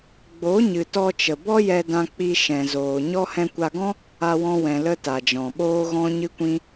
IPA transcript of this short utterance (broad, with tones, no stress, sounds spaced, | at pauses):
ɡ͡b o˨˦ ɲ ɨ˨ t ɔ˧ t͡ʃ ə˨ b ɔ˦ j ɛ˧ d ã˧ k͡p i˧ ʃ ɛ̃˨ z oː˨ ɲ ɔ˦ h ɛ̃˧ kʷ a˧ ɡ ɔ̃˦ | a˧ w ɔ̃˧ w ɛ̃˨ l ə˦ t a˨ d͡ʒ ɔ̃˨ ɓ oː˦ ɣ ɔ̃˦ ɲ ɨ˦ kʷ ĩ˦